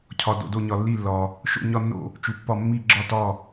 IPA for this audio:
cʰɒ˩ do̰˩do˧˩ɲɒ˩ lːi˧˩lːɒ˩ | ʃo̰˧˩ɲɒ˧˩nːo̰˧˩ | t͡ʃu˩pːɒ˧˩ mːi˧˩ɡ͡ǁɒ˧˩tɒ˧˩

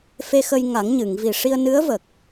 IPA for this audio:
fe˧xə˧jŋa˨˩˦ŋ ɲɨ˨˩˨ŋvi˨˩ ʂi˧ə̯nɨ˧˥ə̯və˨˩k̚

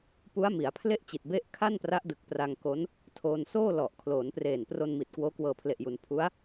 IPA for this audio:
pu˦˥a̯mi˩˦a̯pʰle˥˩ʔt͡ɕi˨˩t̚ be˥˩ʔ kʰa˥˩npra˦˥ʔ dɯ˨˩k̚pra˧ŋko˦˥n | tʰoː˧n soː˥˩ lɔ˨˩ʔ kʰloː˩˦npreː˨˩n pro˧nmi˨˩t̚ kwoː˦˥kwɤː˧pʰle˨˩ʔju˩˦n pʰu˦˥a̯

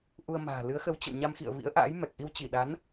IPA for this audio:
ʔu˧ə̯ma̤ː˨˩ lɨ˨˦ə̯xə˨˦w t͡ɕə̰˧˨wɲa˧mxḭ˧˨ə̯ vḭ˧˥ə̯ʔa̰ː˧˥j mɛ˨˩k̚ʔi˧wt͡ɕi˧˩ɗa˨˦n

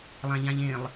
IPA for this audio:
lˠãʎãʎẽlˠ

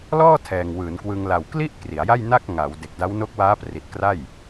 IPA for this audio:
lɔː˥˩ tʰɛː˨˩ŋwɯː˩˦nkwɯ˧ŋ la˨˩wkli˥˩ʔ kri˩˦a̯ja˥˩jna˥˩k̚ ŋaː˩˦w de˨˩k̚da˦˥wno˦˥k̚waː˦˥ pri˨˩t̚ kra˥˩j

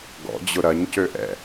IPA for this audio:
ɡɔ̰d͡ʑʊ ɾɐɲcøʔɛ̰

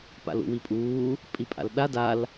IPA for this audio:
pa̰lṵwipʼuː | pʼipʼa̰lɗa dal

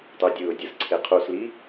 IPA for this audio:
tˤødʲɯʊ̯dʲɯs ǀʰeqʰusli

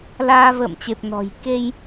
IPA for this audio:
laː˧və̰ː˧˨mt͡ɕe˨˩p̚ nɔ̤˨˩j ke˧j

